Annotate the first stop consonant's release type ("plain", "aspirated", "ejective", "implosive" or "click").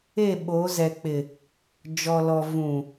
implosive